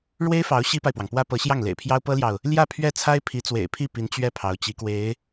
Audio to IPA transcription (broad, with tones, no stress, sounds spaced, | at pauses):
ɻ w e˥ ɪ̯ f ɑ˧˥ ʊ̯ ɕ i˥ p a˨ ɪ̯ p w ɑ˩ ŋ p w ä˥ p ɤ˧˥ ɕ j ɑ˥˩ ŋ l ḛ˨˩ ɪ̯ pʰ j ɑ˥ ʊ̯ p ɤ˥ l j ɑ˨ ʊ̯ | l j ä˥˧ pʰ ɥ ɛ˥˩ t͡sʰ a˥ ɪ̯ pʰ i˧˥ t͡s w ḛ˨˩ ɪ̯ pʰ i˥˩ p i˧˥ n t͡ɕ ɥ ɛ˥˩ pʰ ɑ˧˥ ʊ̯ t͡ɕ i˧˥ k w e˧˥ ɪ̯